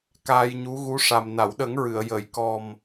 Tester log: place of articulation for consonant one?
velar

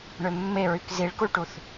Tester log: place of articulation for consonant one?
retroflex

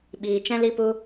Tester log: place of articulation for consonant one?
labial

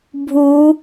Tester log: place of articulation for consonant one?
labial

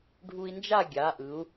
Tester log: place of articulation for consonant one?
retroflex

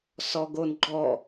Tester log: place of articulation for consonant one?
alveolar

